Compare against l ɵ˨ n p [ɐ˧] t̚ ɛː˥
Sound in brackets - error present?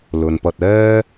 no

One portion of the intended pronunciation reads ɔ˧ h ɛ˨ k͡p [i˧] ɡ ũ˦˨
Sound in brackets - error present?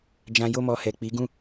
yes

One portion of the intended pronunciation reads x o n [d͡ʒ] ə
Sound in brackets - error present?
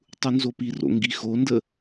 yes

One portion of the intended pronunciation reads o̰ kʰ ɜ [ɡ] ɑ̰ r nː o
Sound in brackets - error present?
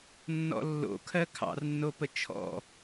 yes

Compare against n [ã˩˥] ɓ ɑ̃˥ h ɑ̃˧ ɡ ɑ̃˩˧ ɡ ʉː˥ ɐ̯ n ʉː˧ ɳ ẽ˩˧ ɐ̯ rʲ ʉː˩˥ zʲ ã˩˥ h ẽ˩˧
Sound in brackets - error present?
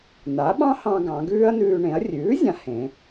yes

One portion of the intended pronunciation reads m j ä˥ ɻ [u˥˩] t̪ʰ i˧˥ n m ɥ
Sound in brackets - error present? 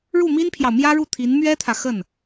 no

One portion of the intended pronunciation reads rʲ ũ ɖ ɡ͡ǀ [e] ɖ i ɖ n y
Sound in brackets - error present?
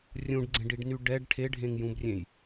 yes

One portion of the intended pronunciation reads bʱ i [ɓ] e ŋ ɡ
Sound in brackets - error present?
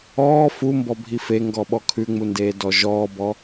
yes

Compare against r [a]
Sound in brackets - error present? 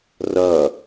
yes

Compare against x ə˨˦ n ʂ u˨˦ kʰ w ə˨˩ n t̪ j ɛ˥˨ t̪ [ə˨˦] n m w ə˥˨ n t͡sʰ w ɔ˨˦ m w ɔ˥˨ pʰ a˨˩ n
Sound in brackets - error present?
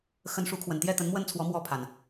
no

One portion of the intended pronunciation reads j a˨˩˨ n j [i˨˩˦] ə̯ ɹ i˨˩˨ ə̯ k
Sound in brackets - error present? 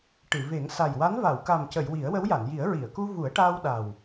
no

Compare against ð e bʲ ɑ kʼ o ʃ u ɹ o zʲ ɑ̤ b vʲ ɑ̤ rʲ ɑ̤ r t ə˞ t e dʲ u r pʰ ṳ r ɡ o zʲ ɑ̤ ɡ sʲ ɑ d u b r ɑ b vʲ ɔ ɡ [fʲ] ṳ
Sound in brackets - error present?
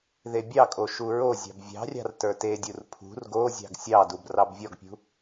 yes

